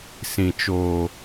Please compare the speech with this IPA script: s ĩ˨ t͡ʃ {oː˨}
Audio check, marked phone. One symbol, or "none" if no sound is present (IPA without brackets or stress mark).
oː˨